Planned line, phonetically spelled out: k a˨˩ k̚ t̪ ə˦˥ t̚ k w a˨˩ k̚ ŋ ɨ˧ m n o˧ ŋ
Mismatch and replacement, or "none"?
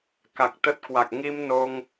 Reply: ɨ˧ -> i˧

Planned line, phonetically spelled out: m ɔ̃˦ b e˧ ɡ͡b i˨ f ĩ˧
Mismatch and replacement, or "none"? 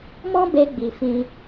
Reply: none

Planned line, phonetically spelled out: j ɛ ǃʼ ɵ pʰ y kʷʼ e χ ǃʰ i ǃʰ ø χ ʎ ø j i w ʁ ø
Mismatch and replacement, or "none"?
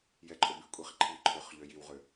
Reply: pʰ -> b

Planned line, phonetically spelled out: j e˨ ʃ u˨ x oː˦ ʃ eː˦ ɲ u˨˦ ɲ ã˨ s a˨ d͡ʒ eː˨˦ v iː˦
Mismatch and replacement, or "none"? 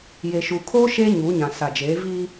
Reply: x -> kʰ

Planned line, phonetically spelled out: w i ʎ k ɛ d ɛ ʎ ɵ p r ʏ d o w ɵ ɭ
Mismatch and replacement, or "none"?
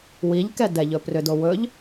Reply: ɭ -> ʎ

